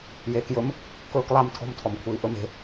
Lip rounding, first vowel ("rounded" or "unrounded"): unrounded